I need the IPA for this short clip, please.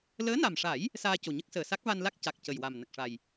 ləː˧˥na˨˩mʂa˨˩˦j | saː˧co˨˩ɲə˦˥k̚səː˨˩ sa˦˥k̚va˧nla˦˥k̚ ca˨˩k̚ cə˨˩jwa˨˩m nə˨˩k̚ʂa˨˩j

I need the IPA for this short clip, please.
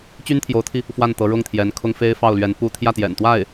t͡ɕy˥nt̪ʰjo˧˥ʊ̯t̪ʰi˧ | fwa˥˩nt̪ɤ˧˥ ɻʊ˥˩ŋt̪ʰjɛ˧˥nkʰʊ˥ŋ fe˥ɪ̯fɑ˥˩ʊ̯lɥɛ˧˥n pu˥˧ t̪ʰjä˥˩t̪jɛ̰˨˩nt̪wa˥˩ɪ̯

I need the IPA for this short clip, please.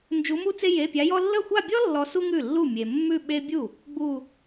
nd͡ʒu˧˥mu˥t͡se˥ je˧˥˧pʲa˧˥jɔ˥ lːə˥˩xʷa˥˧bʲɔ˥ lːɔ˧˥su˥ŋʉ˥˩ lːu˥˩mʲe˨ mːʉ˥˧ ɓe˥ bʲu˥˩ | ɡ͡bu˥˧

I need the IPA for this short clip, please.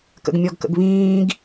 kə̰ɡmʲɔɡkə̰ɡβĩːɡ

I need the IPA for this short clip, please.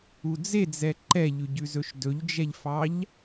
ud͡zed͡zɛ ǃɛʎʉɟʉzɵʃ dɵʎd͡ʒɛʎfɑʎ

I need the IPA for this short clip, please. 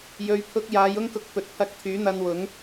jɵ˨˧ɥpʰʊ˧k̚jaː˨˧j ʊ˥ŋkʊ˧k̚ pɵ˨t̚pʰɐ˧k̚ t̪ʰyː˨˥n̪ɐ˧nwʊ˨˥ŋ

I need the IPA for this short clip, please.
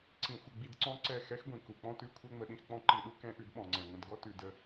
ǀĩ˧xʷə˧ɡ͡bi˧dǀɔ̃˦ ǀɛ˦˨ xɛ˦xɡʷĩ˨ ku˨k͡pɔ̃˦tʉ˦ kʷʰɛ˦ŋ͡mə˧ɗĩ˧xk͡pɔ̃˦ ǃi˧ɗu˦ kɛ̃˦ʔʉ˨˦dɓɔ̃˨ŋ͡ǀɛ̃˨ ŋʷə̃˨dɡɔ˦tʉ˨ də˦

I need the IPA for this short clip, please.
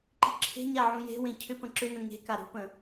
ǃi̤ǁʰe̤ɲa ʕũje̤wẽ cʰʏpə̃ ǁʏnə̃ ŋe̤ka ɾṳpə̃

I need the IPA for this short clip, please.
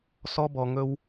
sɔ˦bɔ˧ŋɵ˦w

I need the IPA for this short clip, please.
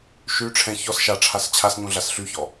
ʃy ʈ͡ʂʰɛ̃ çɔs ʃaʈ͡ʂʰas t͡ɕʰasɲũɮas ɬyçɔ

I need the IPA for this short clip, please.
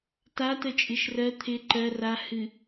tatə t͡ʃʼɨʃrɜ t̪ʰɪ ǃɜ ra hɨ

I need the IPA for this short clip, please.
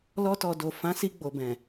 lɔ˧tɔ˨do˨ fã˨˦si˧ɡ͡bo˨bɛ̃˨

